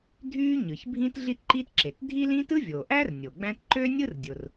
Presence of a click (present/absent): present